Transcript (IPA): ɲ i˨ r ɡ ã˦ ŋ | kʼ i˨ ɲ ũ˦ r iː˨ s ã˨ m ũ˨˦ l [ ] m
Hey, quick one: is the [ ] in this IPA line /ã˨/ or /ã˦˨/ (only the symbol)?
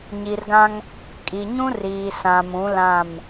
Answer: ã˦˨